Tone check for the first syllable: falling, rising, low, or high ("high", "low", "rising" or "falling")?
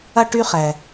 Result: high